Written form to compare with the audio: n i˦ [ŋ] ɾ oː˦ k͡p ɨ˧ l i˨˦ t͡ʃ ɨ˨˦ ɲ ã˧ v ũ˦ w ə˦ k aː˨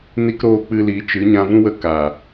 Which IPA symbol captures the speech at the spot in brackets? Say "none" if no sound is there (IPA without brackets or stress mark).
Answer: k